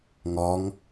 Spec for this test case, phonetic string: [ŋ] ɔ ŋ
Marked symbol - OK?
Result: yes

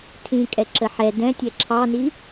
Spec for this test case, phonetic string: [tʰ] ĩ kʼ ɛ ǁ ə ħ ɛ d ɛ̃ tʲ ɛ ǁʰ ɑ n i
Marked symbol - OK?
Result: yes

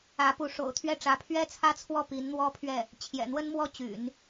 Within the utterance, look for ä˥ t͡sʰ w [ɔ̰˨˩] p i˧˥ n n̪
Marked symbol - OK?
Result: no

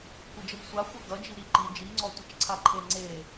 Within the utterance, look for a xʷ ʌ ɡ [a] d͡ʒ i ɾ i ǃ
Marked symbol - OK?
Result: no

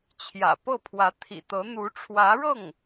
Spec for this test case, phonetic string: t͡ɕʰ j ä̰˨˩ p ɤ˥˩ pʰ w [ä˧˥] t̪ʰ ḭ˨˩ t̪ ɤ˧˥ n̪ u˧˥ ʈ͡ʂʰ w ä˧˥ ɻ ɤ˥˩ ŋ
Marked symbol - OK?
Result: yes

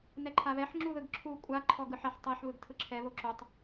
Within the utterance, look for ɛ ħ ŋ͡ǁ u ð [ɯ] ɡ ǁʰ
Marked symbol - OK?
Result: yes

